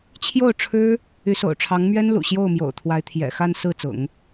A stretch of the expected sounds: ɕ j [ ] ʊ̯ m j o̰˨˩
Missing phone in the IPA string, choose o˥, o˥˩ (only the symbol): o˥˩